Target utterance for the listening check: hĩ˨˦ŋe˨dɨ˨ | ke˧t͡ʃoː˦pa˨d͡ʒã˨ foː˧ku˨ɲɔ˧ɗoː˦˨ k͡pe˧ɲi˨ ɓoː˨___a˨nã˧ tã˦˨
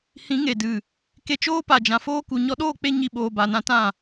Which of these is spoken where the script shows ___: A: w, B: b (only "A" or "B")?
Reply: B